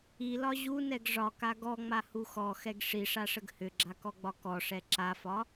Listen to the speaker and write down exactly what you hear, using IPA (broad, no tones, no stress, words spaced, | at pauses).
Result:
ilɒ ʑunɛɡ ʐɒka ɡɔŋ͡mahu xɔxɛɡ ʂiʂaʂəɡ hʏɡ͡ǁakɔɡ͡bɒ kɔʂɛ ǁafɒ